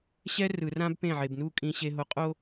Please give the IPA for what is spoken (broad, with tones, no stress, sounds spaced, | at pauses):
ɕ ɛ˦ r ɯ˨ r ã˦ b p ẽ˦˨ ʕ e˨ b n u˦˨ kʼ ĩ˨ ɕ e˨ ɦ o˨ qʼ o˦